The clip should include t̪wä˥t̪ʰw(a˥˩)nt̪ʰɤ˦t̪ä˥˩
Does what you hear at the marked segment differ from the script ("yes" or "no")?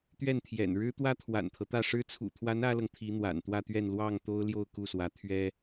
yes